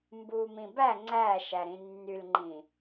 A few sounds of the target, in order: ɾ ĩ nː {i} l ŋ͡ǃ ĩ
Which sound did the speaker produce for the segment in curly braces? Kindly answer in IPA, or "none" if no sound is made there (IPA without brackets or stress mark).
y